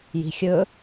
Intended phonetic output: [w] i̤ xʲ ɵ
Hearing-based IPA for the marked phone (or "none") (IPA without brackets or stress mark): j